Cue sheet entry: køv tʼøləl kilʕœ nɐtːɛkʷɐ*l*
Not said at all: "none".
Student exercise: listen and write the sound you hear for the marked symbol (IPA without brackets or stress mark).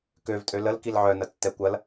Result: l